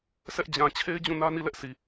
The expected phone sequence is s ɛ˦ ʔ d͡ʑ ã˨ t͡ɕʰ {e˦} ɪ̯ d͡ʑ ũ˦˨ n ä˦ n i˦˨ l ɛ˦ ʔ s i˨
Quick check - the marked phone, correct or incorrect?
correct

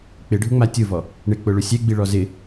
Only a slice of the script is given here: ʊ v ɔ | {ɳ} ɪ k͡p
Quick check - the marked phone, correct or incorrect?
correct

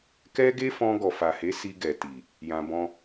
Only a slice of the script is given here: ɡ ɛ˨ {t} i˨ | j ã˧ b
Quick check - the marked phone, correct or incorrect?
correct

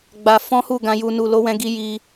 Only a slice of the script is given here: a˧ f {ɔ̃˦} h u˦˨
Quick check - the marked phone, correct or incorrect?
correct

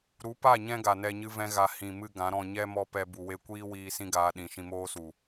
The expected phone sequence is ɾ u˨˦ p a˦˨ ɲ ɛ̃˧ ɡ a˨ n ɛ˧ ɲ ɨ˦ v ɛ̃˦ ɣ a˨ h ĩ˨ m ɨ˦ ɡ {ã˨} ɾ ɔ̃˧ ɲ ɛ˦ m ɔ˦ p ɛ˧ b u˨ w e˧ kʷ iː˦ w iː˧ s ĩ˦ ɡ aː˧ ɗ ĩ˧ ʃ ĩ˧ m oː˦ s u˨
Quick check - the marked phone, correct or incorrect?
incorrect: ã˨˦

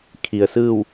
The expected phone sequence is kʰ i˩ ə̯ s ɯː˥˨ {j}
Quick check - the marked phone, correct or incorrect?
incorrect: w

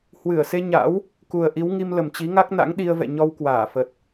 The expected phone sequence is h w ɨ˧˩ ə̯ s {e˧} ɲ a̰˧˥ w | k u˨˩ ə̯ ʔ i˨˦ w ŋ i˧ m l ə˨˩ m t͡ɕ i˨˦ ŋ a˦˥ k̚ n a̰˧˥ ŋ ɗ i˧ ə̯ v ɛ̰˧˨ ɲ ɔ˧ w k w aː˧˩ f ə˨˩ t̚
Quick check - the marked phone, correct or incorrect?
correct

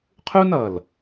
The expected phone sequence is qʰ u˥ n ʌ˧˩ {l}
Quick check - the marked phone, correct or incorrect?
correct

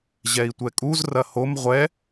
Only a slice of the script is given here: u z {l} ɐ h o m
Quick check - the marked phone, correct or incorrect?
incorrect: r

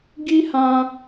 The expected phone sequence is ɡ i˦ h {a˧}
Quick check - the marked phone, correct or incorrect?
incorrect: ã˧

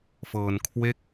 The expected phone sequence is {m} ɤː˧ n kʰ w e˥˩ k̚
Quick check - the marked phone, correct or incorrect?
incorrect: f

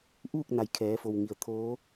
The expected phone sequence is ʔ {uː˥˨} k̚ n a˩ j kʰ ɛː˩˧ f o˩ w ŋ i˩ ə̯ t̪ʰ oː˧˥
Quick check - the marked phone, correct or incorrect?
correct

